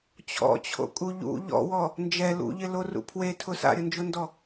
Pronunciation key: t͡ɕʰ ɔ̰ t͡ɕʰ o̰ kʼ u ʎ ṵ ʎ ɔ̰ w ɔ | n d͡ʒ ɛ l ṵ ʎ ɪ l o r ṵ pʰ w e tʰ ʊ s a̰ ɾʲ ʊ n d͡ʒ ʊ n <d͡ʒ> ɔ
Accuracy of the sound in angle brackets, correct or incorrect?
incorrect